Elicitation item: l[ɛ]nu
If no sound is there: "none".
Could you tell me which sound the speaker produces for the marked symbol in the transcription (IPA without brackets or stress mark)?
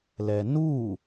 ɛ